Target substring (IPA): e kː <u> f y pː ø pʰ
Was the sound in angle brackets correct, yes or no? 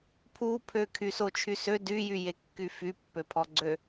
no